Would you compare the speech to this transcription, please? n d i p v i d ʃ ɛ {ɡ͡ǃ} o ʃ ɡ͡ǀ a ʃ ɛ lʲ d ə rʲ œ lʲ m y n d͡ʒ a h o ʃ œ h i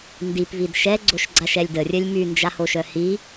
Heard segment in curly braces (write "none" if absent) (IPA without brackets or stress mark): ɡ͡ǀ